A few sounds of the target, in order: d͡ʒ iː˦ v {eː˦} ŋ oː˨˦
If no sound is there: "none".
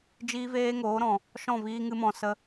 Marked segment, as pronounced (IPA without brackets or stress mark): eː˦